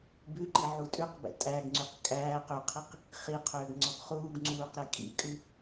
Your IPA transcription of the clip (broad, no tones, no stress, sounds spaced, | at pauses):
b ʉ ǃ i ʕ u tʼ ʉ q b ɛ̰ tʼ æ ɡ ŋ͡ǀ y q kʼ æː q ø qʰ i q | χ i qʰ øː ɡ ŋ͡ǀ ɔ ɡ χ uː ɡ ŋ͡ǀ uː q ɾ ɛ kʼ ḭ kʼ ʉ